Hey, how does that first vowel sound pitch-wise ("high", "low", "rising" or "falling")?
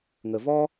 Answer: low